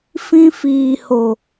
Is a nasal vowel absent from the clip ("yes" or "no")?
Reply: no